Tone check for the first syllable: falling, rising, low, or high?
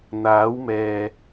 rising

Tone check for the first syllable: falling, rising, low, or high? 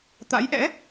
rising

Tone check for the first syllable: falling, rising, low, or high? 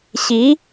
rising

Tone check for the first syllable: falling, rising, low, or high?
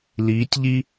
rising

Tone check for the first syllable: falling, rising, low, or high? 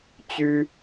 high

